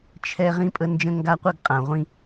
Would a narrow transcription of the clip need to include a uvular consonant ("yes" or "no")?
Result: yes